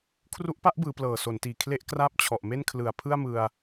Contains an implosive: no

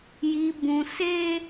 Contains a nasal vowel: yes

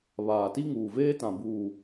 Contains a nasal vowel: yes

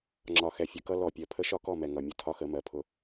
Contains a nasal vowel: no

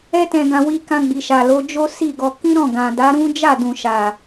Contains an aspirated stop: no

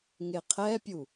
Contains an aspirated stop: yes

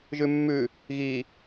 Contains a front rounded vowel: no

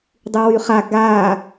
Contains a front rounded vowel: yes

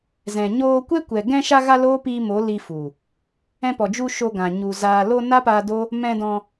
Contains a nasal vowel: yes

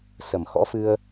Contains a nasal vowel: no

